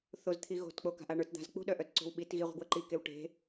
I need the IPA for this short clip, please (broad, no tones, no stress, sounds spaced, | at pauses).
θ o z t̪ʰ i ɣ o̤ t k͡p o k a̤ ʔ a ɳ ə˞ t d̪ a̤ z k͡p ṳ ɗ œ ʔ œ t ǀ o̤ w ɓ i t ɣ i ʁʷ e̤ ɡ w ə ǃ i k e w ʈ e̤